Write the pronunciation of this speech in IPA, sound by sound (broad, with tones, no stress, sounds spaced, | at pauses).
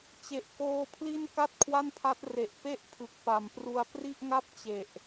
t͡ɕ e˨˩ ʔ k oː˧ pʰ l i˥˩ n k a˥˩ t̚ kʰ w a˥˩ n pʰ a˦˥ t̚ r e˨˩ ʔ p e˥˩ ʔ pʰ ɯ˨˩ k̚ p a˨˩ m p r u˧ a̯ p r i˥˩ ʔ ŋ a˥˩ p̚ t͡ɕ e˨˩ ʔ